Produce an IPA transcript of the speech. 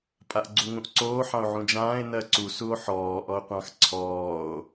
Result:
pʼ a ʔ ɡ͡ǀ u ŋ ũ ʔ ǀ oː ħ ɑ̃ o̯ ʕ ũ d͡ʒ ãː e̯ n ɜ ǀ u s u o̯ ħ ɔː ʔ ɔ o̯ qʷ ɑ̃ x ǀʰ ɔː o̯

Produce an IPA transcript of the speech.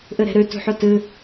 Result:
ʔ ɨ ɾ e̤ ɾ ʉ t ṳ ħ u t ɨ

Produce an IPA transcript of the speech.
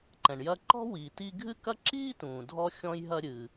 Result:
ǃ ɛ̃˩ ɳ j ɐ˧ ǃ ɔ̤˥ w i˩ t i˧ ɡʱ ɨ˥ k ɐ˥ ǁ iː˥ t ũː˩ dʱ ɔ˧ xʲ ɔ̃˧ j ɦ ɐ˧ ɾʲ ɨ˩

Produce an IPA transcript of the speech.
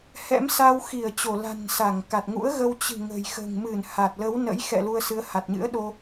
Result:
h ɛ̰˧˥ m s a˧ w x i˧˩ ə̯ t͡ɕ o˧˩ l a̤˨˩ n s a˧˩ ŋ k a˨˩ t̚ ŋ ṵ˧˥ ə̯ ɣ ə˧ w t͡ɕ ɨ̤˨˩ ŋ ə̤˨˩ j x ə̤ː˨˩ ŋ m ɨ˧˩ n h a˨˩ t̚ l ə˨˦ w n ə̰˧˥ j x ɛ̰˧˨ l u˧ ə̯ s ɨ˨˦ ə̯ h a˨˩ t̚ ɲ ɨ̰˧˥ ə̯ ɗ o˧

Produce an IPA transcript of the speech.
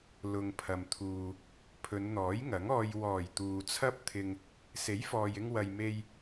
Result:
l ʊ˨ ŋ pʰ ɐ˨ m t̪ʰ uː˨ | pʰ ɵ˨˧ n n̪ ɔː˨˥ j ŋ ɐ˨˥ ŋ ɔː˧ j w ɔː˨˩ j t̪ uː˨ t͡sʰ ɐ˥ p̚ t̪ʰ ɪ˧ ŋ | s e˨˥ j f ɔː˨ j ɪ˧ ŋ w ɐ˨ j m e˧ j

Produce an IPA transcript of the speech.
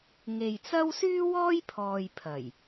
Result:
ŋ e˨ j t͡s ɐ˥ w s yː˥ w ɔː˥ j pʰ ɔː˨ j pʰ ɐ˨˩ j

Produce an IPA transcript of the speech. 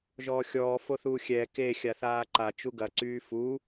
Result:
ʒ ɔː xʲ ɔː f o θ uː xʲ ɛː k e xʲ a θ aː ǃ a t͡ʃ u ɡ ɐ ǀ yː f u

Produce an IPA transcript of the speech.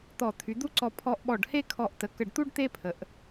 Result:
t̪ ɔ˧˩ t̪ʰ y˩˧ d̪ u˥ ǀ ɔ˧ pʰ ɔ˧ ʔ ɓ ɔ˧˩ ɖ h e˥˧ kʰ ɔ˧˩ ʔ t ə˩˧ k ə˧˩ ɖ t̪ u˥ ɖ t̪ e˥ pʰ ə˩˧ ʔ

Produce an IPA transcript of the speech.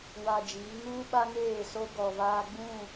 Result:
w a˨ d͡ʒ iː˨˦ ŋ uː˦ ɓ a˦ ŋ eː˦˨ s o˦ ɡ ɔ˨ v aː˦ ɡ͡b ũ˦˨

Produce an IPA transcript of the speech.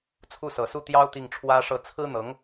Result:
t͡sʰ u˥˩ s ɤ˨˩ s u˥˩ t̪ j ɑ˥ ʊ̯ t̪ i˥˩ ŋ ʈ͡ʂʰ w ä˥ ʂ ɤ˥˩ t͡sʰ ɹ̩˥ n̪ ɤ˧˥ ŋ

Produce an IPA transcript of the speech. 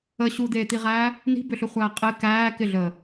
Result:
ə ɕ u d̪ eː t̪ i ʁ æː | n i̤ b ʏ ɬ ʏ χʷ æː qʼ ɪ k æː k ɪ ɮ əː

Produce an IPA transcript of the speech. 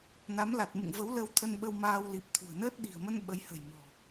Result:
n a˨˦ m l a˨˩ t̚ m ɨ̰˧˨ ŋ v ə˨˦ w l ə˧ w t̪ʰ ə˧ n ɓ ə˧ w m aː˧ w l i˨˩ p̚ t̪ʰ ṳ˨˩ ə̯ n əː˦˥ t̚ ɗ i̤˨˩ ə̯ m ə˧ n ɓ ə˨˦ j h ə̤˨˩ j m ɔ̤˨˩

